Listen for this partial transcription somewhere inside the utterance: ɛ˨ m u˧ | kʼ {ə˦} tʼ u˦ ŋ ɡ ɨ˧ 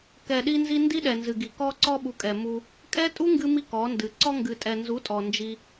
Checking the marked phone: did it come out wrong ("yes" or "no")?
yes